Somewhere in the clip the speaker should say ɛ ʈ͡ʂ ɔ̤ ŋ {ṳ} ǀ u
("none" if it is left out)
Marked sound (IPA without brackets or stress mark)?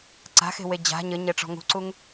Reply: ṳ